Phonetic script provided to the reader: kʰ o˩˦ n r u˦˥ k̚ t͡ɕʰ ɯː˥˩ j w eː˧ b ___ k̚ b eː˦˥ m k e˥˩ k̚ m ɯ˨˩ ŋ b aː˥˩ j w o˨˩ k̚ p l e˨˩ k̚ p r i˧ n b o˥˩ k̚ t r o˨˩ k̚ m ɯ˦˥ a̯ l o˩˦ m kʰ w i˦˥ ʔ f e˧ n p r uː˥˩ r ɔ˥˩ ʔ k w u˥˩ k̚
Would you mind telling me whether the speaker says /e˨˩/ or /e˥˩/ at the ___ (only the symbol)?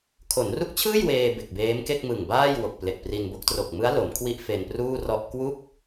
e˨˩